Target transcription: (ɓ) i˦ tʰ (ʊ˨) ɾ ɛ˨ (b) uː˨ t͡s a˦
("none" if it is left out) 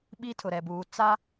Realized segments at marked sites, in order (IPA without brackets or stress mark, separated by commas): ɓ, ʊ˨, b